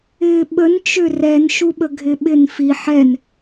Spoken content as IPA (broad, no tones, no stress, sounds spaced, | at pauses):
ɪː ɓ ə n t͡ʃ ʏ r ɛ n ʃ u ɓ ə ɡʱ ɪ ɓ ɪ n f i ħ ɛ n